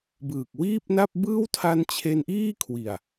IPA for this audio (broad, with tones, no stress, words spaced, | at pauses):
bɯː˨˩k̚wiː˥˩p̚na˥˩p̚ bɯː˥˩wtʰa˦˥nt͡ɕʰe˧nʔiː˥˩ kʰwi˨˩a̯